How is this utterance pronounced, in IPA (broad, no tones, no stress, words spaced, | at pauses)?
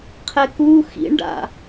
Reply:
qʰɛku xḭɳɖa̰